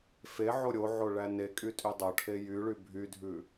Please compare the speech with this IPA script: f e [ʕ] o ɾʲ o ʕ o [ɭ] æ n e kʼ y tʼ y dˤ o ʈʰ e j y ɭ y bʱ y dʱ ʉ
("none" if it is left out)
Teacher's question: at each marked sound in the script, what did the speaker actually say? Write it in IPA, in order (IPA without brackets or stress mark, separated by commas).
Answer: ʕ, ɭ